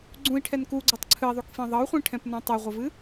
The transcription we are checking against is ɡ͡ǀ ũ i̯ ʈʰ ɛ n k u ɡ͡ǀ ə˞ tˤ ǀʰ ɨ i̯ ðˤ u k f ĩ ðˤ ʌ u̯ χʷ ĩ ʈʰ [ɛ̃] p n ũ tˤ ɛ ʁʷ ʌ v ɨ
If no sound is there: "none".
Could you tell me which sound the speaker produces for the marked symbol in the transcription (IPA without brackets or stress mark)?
ɛ̃